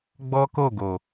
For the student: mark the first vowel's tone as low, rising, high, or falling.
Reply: high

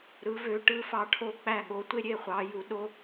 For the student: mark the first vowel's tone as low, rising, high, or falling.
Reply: rising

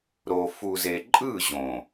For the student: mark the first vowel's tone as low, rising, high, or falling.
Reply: low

